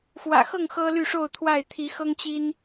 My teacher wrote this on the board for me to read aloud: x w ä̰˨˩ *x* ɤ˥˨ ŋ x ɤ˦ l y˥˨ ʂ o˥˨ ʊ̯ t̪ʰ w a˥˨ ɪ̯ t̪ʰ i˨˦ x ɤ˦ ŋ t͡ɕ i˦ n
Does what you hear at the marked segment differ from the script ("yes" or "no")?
no